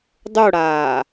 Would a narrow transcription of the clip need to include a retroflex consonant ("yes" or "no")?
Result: yes